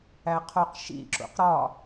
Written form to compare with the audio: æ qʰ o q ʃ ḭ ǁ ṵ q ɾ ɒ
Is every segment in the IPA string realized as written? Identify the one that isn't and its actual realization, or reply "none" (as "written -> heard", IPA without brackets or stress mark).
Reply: none